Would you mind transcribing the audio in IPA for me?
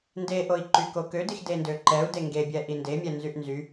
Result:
n d e ʔ o i̯ ǃ y k o k ø d i x d e n d ø ǃ ɛ u̯ d e ŋ ɡ e bʲ ɛ ʔ i n d e mʲ ɛ n z y ʔ n z y

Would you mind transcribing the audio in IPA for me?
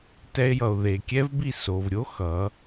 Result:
t ɛ˧ e̯ j ʌ˨ o̯ ð e˨ kʲ ɛ˦ v b i˦˨ s o˨ v ɾʲ o˦ x ʌ˨˦

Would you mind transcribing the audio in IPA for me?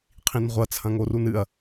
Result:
qʰ ĩ n ʁʷ ɐ t͡sʰ ɐ̃ ŋ o r u n ɨ ɐ̯

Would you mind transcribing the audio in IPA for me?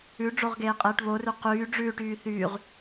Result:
ʉ ɖ͡ʐ o ʁ ɡ eː qʼ eː ʈ β o r ʉ q yː ɖ͡ʐ ʉː ʈ yː θ yː ʁ

